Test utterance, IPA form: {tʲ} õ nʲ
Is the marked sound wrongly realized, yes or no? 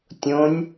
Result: no